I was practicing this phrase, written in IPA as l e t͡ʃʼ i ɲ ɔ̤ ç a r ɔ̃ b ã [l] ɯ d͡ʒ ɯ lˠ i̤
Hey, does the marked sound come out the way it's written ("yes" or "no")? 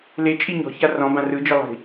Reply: no